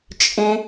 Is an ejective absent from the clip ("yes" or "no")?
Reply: no